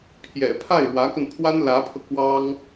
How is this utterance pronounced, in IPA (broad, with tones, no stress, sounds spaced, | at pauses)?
pʰ j ɛ̰˨˩ pʰ a˥˩ ɪ̯ ɻ w ä˧˥ k ə˧ n pʰ w a˥ n l ä˧˥ pʰ ɤ˧ k w ɑ˥ ŋ